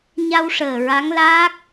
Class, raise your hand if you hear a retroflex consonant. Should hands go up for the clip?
yes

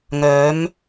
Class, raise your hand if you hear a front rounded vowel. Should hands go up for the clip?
yes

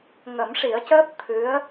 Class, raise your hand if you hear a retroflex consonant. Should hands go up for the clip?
yes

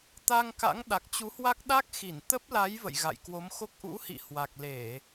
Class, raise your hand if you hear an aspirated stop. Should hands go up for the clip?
no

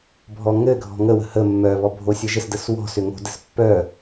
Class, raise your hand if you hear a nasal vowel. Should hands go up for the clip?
no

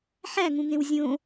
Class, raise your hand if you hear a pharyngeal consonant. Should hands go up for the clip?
yes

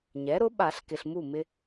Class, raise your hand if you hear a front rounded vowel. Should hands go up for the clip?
no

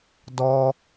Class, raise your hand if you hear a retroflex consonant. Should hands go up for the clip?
no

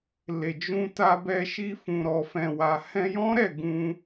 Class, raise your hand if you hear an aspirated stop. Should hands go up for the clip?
no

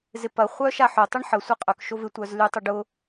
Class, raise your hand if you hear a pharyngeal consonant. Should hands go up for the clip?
yes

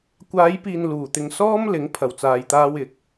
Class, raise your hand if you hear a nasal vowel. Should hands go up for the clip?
no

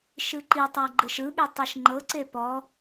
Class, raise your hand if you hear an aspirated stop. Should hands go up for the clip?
no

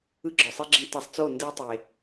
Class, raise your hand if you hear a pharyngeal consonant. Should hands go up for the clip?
no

